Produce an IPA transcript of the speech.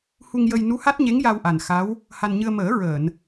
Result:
h u˧ ŋ j ə˧ j n u˧˥ h a˦˥ t̚ ɲ e˧˥ ŋ j a˧ w ʔ a˨˩ n x a˧˥ w | h a˧ n ɲ ɨ˧ ə̯ m əː˨˩˦ ɹ əː˨˩˨ n

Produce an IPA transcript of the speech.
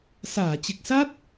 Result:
s aː˧˩ t͡ɕ ɨ˨˩ k̚ s a˦˥ t̚

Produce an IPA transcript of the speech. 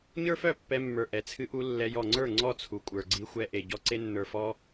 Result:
ɲ ə˞˦ f œ˦˨ pː ɛ˧ mː ə˞˨ ʔ ɛ˨˦ t͡sʰ ɨ˦ ʔ u˦ lː ɛ˧ j ɔ˨ ŋ͡ǀ ə˞˦˨ ŋ͡ǀ ɔ˦˨ t͡sʰ u˨ kʷʼ ə˞˨ ɡ͡ǀ i˧ xʷ ɛ˧ ʔ e˨ ɟ ɔ˧ ǀ e˧ nː ə˞˨ f ɔ˧

